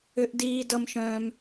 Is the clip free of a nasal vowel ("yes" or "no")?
no